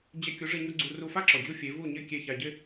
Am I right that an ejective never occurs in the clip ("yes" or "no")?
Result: yes